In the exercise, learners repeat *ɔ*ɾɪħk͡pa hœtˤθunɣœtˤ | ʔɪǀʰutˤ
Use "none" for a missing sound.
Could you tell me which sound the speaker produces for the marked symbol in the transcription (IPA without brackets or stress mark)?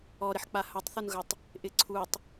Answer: ɔ